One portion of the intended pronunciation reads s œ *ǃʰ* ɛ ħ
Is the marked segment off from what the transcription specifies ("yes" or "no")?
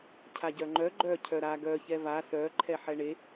no